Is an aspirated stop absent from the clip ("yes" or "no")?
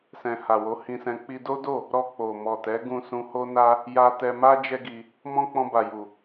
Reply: yes